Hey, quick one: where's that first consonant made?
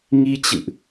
velum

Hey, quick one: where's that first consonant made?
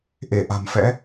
throat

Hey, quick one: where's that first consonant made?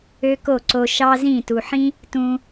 velum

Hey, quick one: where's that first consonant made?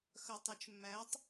velum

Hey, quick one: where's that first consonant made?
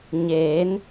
palate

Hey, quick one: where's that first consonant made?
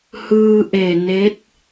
throat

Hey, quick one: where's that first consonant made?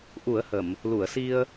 throat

